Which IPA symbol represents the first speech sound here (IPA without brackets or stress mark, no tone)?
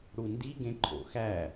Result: ɽ